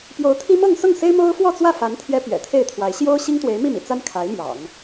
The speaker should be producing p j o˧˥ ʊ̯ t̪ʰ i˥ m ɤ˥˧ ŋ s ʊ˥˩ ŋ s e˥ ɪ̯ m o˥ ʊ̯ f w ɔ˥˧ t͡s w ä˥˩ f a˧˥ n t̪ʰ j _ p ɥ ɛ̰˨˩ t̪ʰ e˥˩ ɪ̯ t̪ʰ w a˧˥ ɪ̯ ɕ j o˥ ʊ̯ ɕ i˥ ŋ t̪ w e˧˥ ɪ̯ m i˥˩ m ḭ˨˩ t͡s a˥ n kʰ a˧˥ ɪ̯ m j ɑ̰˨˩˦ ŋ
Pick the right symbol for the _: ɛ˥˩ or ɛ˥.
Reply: ɛ˥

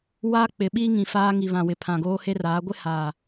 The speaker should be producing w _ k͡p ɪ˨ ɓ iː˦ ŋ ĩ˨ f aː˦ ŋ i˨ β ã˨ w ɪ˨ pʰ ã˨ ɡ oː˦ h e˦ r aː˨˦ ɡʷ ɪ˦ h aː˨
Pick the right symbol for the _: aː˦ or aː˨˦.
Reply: aː˦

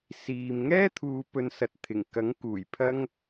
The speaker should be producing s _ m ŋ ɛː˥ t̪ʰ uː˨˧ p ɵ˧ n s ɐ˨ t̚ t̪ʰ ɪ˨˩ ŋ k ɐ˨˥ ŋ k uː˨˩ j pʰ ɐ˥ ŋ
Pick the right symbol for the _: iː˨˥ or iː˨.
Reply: iː˨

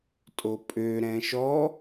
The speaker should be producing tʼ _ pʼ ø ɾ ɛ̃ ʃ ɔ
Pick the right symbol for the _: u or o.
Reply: o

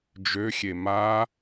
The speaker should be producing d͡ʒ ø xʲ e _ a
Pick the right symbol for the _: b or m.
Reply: m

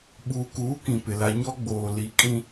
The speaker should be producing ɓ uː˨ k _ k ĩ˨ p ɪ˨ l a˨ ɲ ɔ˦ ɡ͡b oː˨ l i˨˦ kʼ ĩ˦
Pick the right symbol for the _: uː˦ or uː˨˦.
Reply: uː˨˦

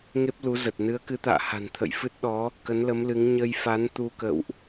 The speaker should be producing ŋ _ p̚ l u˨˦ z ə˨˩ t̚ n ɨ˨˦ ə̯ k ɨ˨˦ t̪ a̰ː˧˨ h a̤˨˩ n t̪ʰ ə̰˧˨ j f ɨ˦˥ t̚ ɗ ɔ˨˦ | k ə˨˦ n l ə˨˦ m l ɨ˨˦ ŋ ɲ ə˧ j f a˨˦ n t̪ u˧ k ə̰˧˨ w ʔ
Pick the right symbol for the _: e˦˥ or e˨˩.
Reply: e˦˥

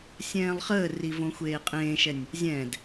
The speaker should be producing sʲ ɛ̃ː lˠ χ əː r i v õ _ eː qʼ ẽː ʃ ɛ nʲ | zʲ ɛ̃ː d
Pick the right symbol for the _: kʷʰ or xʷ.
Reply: xʷ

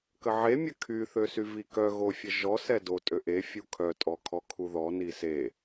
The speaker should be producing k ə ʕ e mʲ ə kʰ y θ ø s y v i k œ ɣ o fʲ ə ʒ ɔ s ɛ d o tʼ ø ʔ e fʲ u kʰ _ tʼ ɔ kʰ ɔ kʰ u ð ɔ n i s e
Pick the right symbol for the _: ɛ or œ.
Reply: œ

